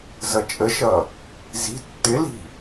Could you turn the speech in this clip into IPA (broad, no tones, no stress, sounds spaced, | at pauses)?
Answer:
z ʌ t͡ʃʼ ə ʃ ʌ | z i̤ tː ɪ l i̤